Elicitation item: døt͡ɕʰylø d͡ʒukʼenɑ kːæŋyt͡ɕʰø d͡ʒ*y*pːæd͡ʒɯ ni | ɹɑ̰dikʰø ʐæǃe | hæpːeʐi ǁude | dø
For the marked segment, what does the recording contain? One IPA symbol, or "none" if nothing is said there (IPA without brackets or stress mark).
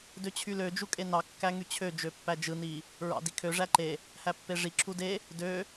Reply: ø